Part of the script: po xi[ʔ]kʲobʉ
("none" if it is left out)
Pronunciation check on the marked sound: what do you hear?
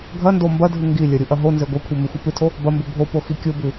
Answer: none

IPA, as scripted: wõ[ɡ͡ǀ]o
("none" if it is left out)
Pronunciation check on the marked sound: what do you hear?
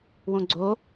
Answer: ɡ͡ǀ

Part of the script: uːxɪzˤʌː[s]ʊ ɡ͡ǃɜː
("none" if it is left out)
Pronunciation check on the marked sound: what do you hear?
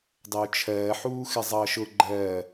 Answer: ʃ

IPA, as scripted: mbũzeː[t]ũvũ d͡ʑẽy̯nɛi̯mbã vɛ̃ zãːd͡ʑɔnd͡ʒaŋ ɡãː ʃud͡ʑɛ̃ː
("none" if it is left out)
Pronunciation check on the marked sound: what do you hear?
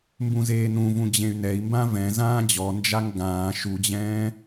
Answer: n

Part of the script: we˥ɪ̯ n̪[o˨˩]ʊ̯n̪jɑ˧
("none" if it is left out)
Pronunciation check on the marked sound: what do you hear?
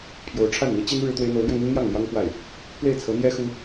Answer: o˧˥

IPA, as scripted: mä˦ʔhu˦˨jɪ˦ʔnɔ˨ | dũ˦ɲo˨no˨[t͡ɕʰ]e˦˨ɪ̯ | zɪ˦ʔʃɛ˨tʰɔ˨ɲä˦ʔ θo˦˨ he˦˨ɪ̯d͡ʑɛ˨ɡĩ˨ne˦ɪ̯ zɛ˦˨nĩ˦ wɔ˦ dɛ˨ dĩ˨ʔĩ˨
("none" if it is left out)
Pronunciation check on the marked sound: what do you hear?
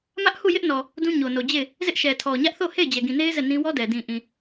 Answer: d͡ʑ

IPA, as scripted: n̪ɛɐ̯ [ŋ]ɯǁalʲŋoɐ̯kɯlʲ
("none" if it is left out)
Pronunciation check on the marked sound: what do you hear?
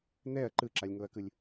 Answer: ǃ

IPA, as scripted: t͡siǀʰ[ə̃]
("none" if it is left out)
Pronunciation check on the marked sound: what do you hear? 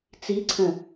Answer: ə̃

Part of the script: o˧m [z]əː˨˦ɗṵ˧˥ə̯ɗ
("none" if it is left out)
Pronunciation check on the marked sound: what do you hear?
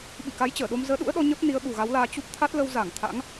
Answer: z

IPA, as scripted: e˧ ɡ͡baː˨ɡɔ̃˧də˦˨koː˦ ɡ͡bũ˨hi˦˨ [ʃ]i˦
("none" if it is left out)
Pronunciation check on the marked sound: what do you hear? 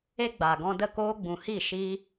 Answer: ʃ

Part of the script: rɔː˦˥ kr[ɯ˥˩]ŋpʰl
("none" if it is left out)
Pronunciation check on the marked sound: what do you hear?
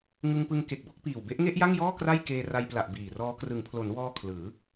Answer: ɯ˩˦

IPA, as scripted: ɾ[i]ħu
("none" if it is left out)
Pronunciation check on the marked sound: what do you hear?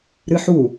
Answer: ɨ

